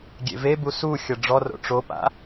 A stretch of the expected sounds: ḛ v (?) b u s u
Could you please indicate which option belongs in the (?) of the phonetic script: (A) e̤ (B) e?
B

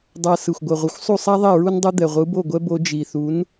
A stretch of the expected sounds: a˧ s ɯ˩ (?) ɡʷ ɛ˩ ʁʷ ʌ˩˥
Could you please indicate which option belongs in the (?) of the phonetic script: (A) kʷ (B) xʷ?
B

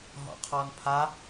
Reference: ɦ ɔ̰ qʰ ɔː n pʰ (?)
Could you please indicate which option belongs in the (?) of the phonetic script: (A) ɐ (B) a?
B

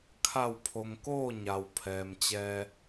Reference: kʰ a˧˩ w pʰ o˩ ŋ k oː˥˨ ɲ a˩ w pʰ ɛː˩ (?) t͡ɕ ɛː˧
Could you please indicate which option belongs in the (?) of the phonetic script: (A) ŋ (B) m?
B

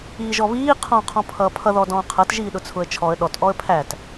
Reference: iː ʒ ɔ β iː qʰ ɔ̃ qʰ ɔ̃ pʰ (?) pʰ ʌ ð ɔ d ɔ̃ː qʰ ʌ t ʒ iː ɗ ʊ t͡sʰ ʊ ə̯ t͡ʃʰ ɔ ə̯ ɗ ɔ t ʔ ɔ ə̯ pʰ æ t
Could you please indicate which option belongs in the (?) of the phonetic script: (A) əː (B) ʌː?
B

